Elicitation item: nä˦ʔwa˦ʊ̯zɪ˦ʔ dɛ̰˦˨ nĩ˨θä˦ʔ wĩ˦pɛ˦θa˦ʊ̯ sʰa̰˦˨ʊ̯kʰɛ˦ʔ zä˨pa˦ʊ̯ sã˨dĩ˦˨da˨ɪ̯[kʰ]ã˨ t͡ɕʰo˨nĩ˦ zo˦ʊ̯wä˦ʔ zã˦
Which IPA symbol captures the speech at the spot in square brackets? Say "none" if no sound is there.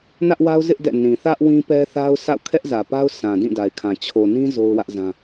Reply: kʰ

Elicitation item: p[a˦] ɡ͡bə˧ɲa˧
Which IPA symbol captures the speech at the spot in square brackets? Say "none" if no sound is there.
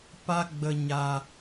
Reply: a˦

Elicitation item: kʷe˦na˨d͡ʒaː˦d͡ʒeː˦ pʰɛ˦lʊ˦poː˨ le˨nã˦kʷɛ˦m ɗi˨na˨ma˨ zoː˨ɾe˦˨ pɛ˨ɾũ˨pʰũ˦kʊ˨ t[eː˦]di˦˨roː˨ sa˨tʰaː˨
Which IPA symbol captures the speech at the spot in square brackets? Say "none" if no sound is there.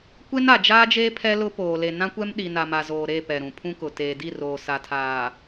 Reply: eː˨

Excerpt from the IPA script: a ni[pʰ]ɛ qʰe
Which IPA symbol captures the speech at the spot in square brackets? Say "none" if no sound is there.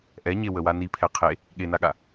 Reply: pʰ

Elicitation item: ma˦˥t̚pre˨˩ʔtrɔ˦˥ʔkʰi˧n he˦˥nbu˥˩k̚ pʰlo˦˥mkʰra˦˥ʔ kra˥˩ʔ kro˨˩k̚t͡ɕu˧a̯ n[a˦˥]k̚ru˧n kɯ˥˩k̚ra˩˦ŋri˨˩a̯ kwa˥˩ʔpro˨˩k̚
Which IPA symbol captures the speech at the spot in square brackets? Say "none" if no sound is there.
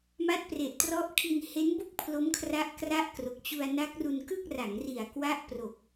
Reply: a˦˥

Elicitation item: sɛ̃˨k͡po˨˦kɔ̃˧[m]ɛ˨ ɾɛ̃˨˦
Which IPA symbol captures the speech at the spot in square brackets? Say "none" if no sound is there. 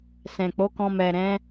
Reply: m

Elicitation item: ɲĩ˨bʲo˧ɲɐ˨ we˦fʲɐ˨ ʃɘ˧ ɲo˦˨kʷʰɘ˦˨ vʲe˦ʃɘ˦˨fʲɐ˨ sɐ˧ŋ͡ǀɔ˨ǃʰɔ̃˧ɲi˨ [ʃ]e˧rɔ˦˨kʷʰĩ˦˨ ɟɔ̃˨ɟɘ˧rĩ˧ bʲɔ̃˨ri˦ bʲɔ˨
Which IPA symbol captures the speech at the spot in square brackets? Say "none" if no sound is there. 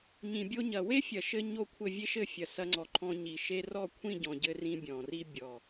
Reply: ʃ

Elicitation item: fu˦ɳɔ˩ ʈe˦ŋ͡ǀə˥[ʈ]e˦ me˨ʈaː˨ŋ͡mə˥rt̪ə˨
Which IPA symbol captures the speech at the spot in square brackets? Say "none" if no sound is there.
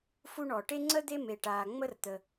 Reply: d̪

